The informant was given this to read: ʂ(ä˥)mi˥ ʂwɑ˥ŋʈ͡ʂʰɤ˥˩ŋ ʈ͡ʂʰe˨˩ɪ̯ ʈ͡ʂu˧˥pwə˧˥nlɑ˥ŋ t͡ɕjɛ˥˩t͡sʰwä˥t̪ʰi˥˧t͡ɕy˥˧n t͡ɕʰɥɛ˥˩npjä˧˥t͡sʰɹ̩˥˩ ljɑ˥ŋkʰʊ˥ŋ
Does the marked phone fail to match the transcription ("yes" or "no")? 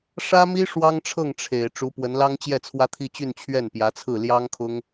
no